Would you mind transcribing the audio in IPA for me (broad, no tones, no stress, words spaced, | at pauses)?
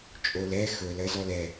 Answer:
t͡ʃʼolɛ xɵl ɜzɔlɛ